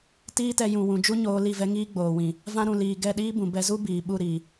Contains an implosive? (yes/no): yes